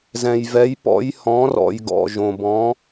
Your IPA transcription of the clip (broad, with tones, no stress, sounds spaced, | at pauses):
z ɛ̃˨ j v ɛ˨˦ j p ɔ̰˨˦ j h ɔ̃˨˦ r ɔ̰˨ j ɡ ɔ̰˨ ʒ õ˨ b ɔ̃˨˦